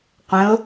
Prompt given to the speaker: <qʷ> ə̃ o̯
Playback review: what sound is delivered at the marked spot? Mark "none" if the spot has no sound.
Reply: qʷ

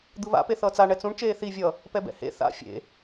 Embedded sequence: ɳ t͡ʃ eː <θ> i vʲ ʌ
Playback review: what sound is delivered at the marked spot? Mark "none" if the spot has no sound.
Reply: θ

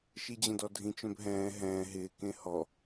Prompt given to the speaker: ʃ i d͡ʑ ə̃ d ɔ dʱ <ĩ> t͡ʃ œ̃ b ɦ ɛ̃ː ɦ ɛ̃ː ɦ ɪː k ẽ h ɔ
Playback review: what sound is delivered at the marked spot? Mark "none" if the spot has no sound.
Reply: ĩ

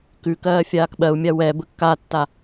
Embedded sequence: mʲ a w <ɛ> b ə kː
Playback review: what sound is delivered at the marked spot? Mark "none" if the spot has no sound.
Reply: ɛ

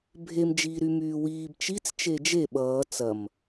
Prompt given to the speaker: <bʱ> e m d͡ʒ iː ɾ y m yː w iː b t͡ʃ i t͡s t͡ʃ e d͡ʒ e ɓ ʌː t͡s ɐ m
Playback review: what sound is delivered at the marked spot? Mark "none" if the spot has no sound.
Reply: bʱ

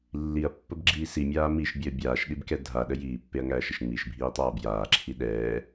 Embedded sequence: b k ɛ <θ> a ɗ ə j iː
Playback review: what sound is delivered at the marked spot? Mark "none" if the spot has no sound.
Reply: dʱ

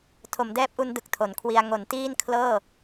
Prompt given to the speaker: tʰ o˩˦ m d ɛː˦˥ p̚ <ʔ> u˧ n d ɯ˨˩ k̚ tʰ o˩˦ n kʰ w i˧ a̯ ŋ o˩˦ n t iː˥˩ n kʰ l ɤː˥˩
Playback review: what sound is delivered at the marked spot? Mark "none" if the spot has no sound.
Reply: ʔ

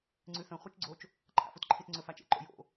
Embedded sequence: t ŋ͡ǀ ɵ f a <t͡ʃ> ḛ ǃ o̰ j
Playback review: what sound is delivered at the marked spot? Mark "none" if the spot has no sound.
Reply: t͡ʃ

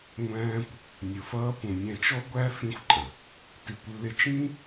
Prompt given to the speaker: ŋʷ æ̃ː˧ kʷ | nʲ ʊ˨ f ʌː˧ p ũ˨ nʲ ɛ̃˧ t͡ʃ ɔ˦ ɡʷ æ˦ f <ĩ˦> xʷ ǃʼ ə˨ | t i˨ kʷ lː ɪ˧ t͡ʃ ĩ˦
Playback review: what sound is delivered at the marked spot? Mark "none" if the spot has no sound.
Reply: ĩ˦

